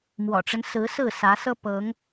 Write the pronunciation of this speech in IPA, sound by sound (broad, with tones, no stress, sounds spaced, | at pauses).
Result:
m w ɔ̰˨˩ ʈ͡ʂ ə˦ n s ɹ̩˨˦ s ɹ̩˥˨ s ä˨˦ s ɤ˦ p ɤ˨˦ ŋ